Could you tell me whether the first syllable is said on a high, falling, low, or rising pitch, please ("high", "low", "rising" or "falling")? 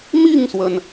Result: falling